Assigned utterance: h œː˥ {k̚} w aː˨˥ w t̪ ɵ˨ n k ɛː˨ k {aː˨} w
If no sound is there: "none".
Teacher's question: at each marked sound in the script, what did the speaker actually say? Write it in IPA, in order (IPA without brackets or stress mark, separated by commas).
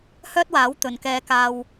t̚, aː˨